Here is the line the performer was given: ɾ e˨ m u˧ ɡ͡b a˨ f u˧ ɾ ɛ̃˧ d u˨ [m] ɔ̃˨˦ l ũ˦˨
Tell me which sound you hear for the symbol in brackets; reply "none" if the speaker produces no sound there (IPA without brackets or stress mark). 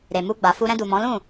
m